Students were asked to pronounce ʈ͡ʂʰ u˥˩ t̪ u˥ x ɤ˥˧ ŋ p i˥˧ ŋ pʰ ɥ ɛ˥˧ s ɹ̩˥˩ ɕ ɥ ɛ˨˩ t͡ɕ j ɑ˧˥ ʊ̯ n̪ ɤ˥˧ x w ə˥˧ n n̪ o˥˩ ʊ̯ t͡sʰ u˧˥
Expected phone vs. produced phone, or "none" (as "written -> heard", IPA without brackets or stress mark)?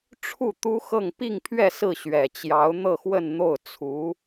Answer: none